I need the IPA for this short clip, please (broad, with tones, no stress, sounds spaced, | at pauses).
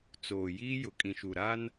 t͡s oː˨ j iː˦ j ʊ˨ kʼ ĩ˨ ʃ u˨ ɾ a˦ n